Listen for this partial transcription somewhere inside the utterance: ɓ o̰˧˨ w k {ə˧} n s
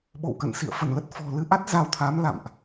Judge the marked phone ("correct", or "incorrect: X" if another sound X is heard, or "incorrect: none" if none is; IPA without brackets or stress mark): incorrect: ə̰˧˨